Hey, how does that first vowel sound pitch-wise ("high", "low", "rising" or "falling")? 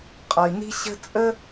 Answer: low